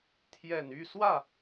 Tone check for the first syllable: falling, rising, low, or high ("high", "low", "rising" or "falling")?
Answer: low